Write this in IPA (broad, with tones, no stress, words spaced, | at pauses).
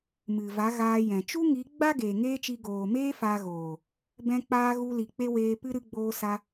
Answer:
mɨ˨va˨˦ɣaː˧jɛ̃˨ t͡ʃu˦ŋi˨˦ɡ͡ba˦ ɡeː˨ŋeː˦t͡ʃi˧ ɡoː˨meː˦ fa˧ɣoː˨ | bɛ̃˧k͡paː˧ ɣu˧li˨ k͡pe˦weː˧pɨ˦ ɾɨ˧ɡ͡boː˧sa˧